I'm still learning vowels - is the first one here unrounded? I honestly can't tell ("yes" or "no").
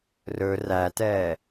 no